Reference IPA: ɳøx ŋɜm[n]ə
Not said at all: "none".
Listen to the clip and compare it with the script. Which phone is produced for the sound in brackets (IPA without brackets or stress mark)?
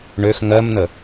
n